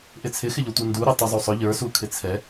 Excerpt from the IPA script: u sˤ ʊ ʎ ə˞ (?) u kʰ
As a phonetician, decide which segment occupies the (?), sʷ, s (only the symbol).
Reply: s